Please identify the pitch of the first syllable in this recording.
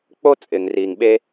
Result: high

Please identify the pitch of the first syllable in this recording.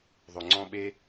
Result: low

